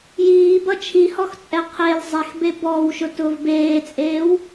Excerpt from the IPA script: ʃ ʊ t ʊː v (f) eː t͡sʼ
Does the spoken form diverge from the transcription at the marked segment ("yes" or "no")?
yes